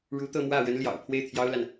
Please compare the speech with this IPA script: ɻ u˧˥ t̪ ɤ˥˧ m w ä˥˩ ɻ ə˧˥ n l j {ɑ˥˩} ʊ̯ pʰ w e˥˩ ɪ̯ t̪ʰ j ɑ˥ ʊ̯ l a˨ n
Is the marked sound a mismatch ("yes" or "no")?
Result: yes